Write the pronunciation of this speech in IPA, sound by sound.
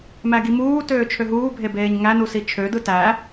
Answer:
m æ ɡ i m uː t øː t͡ʃʰ ø ɦ uː bʱ e b eː ɲ ŋ æ n u s i t͡ʃʰ ø d ɯ t æ

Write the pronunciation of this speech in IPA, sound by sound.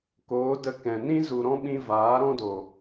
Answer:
k oː˨˦ d ə˧ k ɛ̃˨ n ĩ˦ z u˨ ɾ ɔ̃˦ ɓ ĩ˧ v aː˨˦ ɾ ɔ̃˦ d o˨

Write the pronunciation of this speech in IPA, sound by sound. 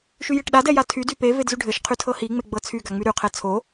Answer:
ʃ y j e ʈ ɗ a d ɛ j a tʰ y d y p e v e d z y ɖʱ ɘ ʃ qʰ y tʰ ɤ h i ŋ͡m e ɡ͡b ɤ t͡sʰ y ɡ a ŋ͡m y ɾ y qʰ ɛ t͡sʰ o

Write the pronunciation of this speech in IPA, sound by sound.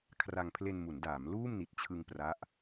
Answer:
kʰ r a˧ ŋ pʰ l e˧ n m u˩˦ n d aː˩˦ m l uː˥˩ m n i˨˩ t̚ t͡ɕʰ ɯ˧ ŋ p r a˦˥ ʔ

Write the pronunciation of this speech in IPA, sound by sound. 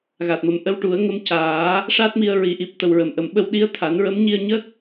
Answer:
ɣ a˨˩ t̚ m ə˨˩ m ʔ ə˧ w ʈ u˨˩˦ ə̯ ŋ ə˧ m c aː˨˩˦ | ʂ a˦˥ t̚ m i˧ ə̯ ɹ i˨˩˦ ʔ i˨˩ p̚ t̪ ə˨˩ w ɹ ə˨˩˨ m ʔ ə˨˩˨ m ɓ ə˧ w ɗ i˧˥ ə̯ t̪ʰ a˨˩˦ n ɹ ə˧˥ m ɲ i˧ ə̯ ɲ ə˦˥ k̚

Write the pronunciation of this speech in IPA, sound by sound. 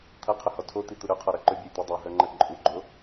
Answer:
t̪ʰ ɐ qʰ ʏ h ɔ tʰ o t̪ i t̪ u ɾ ʏ qʰ ɔ ɾ ɐ ǃ ʏ bʲ o j t̪ u dˤ o ɦ œ ŋ͡ǃ ɐ ǃʼ u ɡ͡ǃ o

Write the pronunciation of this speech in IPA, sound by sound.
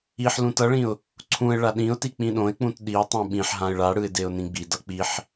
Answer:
i ħ l ũ t ʌ ɭ ĩ ʊ̯ | ǀʰ ũ ɪ̯ ɭ a ɗ ĩ ʊ̯ t i k͡p ĩ ɗ õ ɪ̯ k͡p ũ t ɗ i ʊ̯ tˤ ũ ɓ ĩ ħ ɦ ã ɪ̯ ɭ a ɽ ɯ ɪ̯ d e ʊ̯ n ĩ ɡ͡b i d ʌ k͡p i ħ

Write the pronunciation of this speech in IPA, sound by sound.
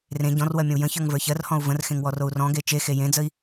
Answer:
r ẽ ɟ ɔ̃ r w ɜ mʲ ə̃ u̯ j ə̃ ç ə˞ ŋ v ə˞ ç ɜ r h ɔ̃ u̯ v ə̃ r x ẽ ŋ w ɔ r o u̯ r ɔ̃ ɡ e t͡ʃ e x e j ẽ d͡z ə i̯

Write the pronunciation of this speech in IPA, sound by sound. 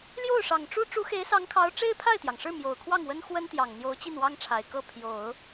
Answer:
l j o˥˩ ʊ̯ ʂ ɑ˨˩ ŋ ʈ͡ʂ u˥ ʈ͡ʂ u˧˥ x e˧˥ ɪ̯ s ɑ˧˥ ŋ kʰ ɑ˧˥ ʊ̯ ʈ͡ʂ e˥ ɪ̯ pʰ a˥˩ ɪ̯ t̪ j ɑ˩ ŋ ʂ ɻ̩˥˩ m j o˨˩ ʊ̯ kʰ w ɑ˥˩ ŋ w ə˥ n x w ə˥ n t̪ j ɑ˨˩ ŋ n̪ j o˧˥ ʊ̯ t͡ɕ i˥˩ n w ɑ˥ ŋ ʈ͡ʂʰ a˨˩ ɪ̯ k ɤ˥˩ pʰ j o˨˩˦ ʊ̯

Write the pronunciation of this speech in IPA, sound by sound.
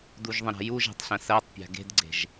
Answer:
d u ʒ ðˤ ə̃ ɾ a̤ j u ʒ e̤ tˤ ɬ ə̃ s ɜ tˤ pʲ a̤ ɡ e̤ d ɡ͡ǀ e̤ ʒ

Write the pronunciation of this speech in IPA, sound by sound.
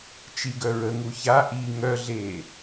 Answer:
t͡ʃ i ɡ œ ɹ ə ŋ u ç a ʔ i ŋ œ ɮ eː

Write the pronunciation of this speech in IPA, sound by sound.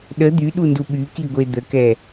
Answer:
ɗ ə d̪ y ɗ u n d u ɓ y k i ɡʷ e d̪ ə k ɛ

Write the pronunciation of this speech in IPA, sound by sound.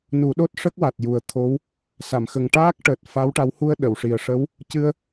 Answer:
n u˨˩˦ ɗ o˦˥ t̚ ʂ ə˦˥ k̚ w a˨˩ t̚ j u˨˩ ə̯ t̪ʰ o˧˥ w | s a˨˩˨ m x ə˨˩ ŋ ʈ aː˦˥ k̚ ʈ əː˨˩ t̚ f a˧˥ w ʈ a˧˥ w h u˧ ə̯ ɗ ə˨˩˨ w ʂ i˨˩ ə̯ ʂ ə˧˥ w | c ɨ˧ ə̯

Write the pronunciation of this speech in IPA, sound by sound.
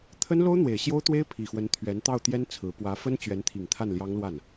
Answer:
t̪ʰ ə˥ n l o˥ ʊ̯ n̪ w e˨˩ ɪ̯ ɕ j o˥ ʊ̯ t̪ w e˥ ɪ̯ pʰ i˨˩ x w ə˧˥ n t̪ʰ ɥ ɛ˧˥ n t̪ ɑ˥˩ ʊ̯ t̪ j ɛ˥ n t͡sʰ ɹ̩˧˥ p w ä˧˥ f ə˥ n t͡ɕ ɥ ɛ˧˥ n t̪ʰ i˨˩ ŋ t̪ʰ a˥˩ n l j ɑ˥ ŋ l w a˥˩ n

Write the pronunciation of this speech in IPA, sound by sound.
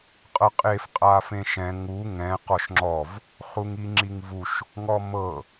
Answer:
qʼ ɤ qʼ e f qʼ a f ẽ ʃ ɛ̃ ŋ u ŋ ɛ̃ q ɔ ʃ ŋ͡ǁ ɔ v | χ u ŋ i ŋ͡ǁ i ŋ v u ʃ | ŋ ɔ m ɤ

